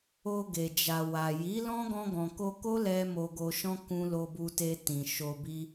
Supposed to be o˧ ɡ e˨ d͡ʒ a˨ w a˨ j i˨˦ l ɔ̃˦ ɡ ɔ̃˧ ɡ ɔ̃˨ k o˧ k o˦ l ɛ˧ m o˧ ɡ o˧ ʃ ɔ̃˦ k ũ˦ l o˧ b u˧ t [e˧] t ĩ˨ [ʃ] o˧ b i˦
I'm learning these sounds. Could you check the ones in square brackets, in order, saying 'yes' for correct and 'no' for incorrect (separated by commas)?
yes, yes